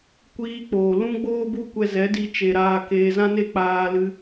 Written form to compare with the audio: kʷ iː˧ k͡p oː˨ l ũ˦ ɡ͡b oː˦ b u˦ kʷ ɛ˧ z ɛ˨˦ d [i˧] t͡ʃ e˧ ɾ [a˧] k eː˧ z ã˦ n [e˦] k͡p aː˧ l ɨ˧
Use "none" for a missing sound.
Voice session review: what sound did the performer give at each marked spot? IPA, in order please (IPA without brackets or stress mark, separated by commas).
i˧, aː˧, e˦